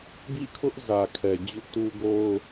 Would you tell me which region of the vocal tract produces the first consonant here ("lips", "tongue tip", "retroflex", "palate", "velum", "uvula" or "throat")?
velum